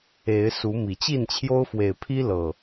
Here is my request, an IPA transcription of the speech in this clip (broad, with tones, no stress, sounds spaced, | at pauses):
e˨˦ ɪ̯ s u˨˦ m i˨˩ t͡ɕ i˥˨ n t͡ɕʰ j o˦ ʊ̯ f w e˨˩ ɪ̯ pʰ i˦ l ɤ˨˩